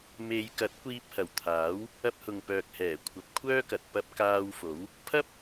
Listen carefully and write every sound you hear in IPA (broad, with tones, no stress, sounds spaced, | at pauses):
m e˨˧ j k ɐ˨˥ t̚ kʷ iː˧ p̚ h ɐ˨˩ w t̪ʰ aː˨˥ w | ɐ˧ p̚ h ʊ˨ ŋ p œː˨ k̚ h ɛː˨˩ kʷʰ ɐ˨˥ p̚ kʷʰ œː˥ k ɐ˨ t̚ p ɐ˧ p̚ k aː˧ w f o˨˥ w | pʰ ɐ˥ p̚